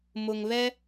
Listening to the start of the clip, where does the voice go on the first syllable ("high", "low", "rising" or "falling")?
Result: low